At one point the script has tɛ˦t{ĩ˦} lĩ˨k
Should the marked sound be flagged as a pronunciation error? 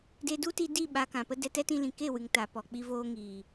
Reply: yes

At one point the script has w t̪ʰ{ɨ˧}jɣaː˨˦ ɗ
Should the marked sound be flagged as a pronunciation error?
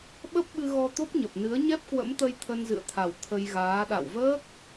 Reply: yes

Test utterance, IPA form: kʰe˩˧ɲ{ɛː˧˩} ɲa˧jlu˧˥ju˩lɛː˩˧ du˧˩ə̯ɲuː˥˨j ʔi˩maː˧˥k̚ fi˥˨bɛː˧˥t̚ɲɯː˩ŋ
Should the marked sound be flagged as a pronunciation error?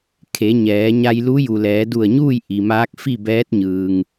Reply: yes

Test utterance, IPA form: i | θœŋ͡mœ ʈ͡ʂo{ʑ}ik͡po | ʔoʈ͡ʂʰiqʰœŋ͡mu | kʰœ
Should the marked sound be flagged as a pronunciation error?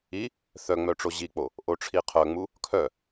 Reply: no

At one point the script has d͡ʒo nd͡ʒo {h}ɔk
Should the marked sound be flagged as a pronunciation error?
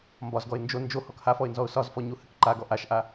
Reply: no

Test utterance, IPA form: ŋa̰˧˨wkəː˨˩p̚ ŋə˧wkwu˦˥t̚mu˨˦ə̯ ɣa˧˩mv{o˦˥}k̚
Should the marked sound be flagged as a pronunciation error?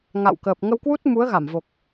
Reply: yes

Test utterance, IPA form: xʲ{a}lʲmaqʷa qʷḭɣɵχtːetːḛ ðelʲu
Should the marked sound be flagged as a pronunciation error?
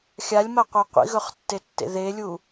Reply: no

